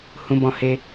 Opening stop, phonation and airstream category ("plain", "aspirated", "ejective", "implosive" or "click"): plain